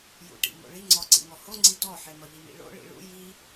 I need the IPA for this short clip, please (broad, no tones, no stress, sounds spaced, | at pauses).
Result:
j ṵ ʈ ḭ m o̰ ɭ i ŋ͡ǀ ɔ ǀ ḭ ŋ ɔ h o ŋ͡ǀ i d ɔ ħ e m ɒ ʎ i m ḭ ɭ o̰ ɭ ḭ ɭ ṵ j i